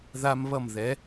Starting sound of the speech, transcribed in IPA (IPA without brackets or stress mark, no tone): ð